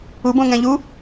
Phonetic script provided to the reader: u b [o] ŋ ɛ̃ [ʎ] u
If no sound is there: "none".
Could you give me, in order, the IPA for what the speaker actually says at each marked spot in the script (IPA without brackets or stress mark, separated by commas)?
õ, ʎ